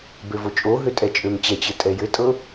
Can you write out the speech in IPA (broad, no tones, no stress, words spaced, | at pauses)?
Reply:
bøvot͡ʃʼoɦø tʼɛt͡ʃʼømt͡ɕɛt͡ɕɘ tʼɛjɘtʼɤ